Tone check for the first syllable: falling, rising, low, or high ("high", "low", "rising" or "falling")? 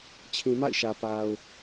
low